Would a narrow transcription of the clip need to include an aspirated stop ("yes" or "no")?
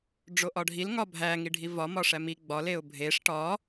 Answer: no